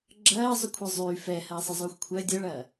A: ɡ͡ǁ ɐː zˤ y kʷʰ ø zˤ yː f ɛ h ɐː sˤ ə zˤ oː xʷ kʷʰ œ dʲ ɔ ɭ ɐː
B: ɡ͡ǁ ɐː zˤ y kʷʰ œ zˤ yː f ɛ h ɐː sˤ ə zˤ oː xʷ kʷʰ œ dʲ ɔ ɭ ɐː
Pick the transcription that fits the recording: B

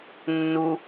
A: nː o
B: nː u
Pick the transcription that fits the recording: B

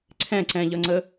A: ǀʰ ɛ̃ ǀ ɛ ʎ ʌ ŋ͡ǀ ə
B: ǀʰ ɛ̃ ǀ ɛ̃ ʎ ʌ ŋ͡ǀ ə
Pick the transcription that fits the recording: B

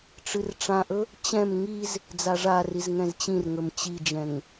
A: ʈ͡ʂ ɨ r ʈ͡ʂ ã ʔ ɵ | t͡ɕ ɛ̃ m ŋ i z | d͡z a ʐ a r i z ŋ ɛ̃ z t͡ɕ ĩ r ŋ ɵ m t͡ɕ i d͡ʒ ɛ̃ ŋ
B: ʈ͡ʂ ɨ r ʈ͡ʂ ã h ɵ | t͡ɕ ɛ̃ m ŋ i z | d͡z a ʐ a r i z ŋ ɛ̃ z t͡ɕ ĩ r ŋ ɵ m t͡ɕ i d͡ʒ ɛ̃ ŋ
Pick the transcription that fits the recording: A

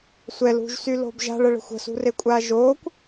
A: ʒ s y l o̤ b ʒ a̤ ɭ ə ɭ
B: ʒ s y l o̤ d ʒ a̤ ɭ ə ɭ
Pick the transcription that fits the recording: A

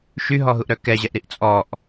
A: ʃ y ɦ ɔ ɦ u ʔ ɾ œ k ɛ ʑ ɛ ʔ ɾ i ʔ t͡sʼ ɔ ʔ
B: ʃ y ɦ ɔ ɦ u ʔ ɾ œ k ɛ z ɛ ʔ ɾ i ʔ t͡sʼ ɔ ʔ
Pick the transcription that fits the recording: A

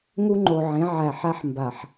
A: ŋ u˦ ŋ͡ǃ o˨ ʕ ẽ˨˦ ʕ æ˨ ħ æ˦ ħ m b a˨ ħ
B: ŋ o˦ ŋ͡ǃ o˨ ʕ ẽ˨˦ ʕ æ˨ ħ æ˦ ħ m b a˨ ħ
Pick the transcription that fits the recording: A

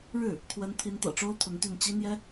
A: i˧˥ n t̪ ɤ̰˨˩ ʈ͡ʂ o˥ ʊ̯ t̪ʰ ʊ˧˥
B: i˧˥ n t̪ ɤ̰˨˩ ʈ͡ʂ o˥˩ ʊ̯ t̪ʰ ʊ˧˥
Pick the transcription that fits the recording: A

